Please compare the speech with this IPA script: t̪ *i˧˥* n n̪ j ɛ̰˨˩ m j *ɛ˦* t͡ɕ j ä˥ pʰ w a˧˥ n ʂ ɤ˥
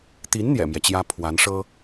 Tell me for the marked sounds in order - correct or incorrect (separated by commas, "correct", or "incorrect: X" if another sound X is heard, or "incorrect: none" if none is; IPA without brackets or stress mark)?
correct, correct